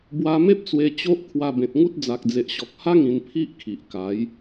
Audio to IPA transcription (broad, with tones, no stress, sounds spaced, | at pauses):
b w a˧ m e˦ p̚ t͡s w e˧ t͡ɕ o˦ ʔ kʰ w a˧ b ẽ˨ t̚ ŋ u˦ t̚ d͡z a˨ k̚ d͡z e˨ ʔ ɕ ɔ˨ k̚ h a˦ ŋ ĩ˧ n pʰ i˦ ʔ kʰ i˨ ʔ k a˨˦ j